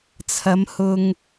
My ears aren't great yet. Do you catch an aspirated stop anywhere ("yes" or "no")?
yes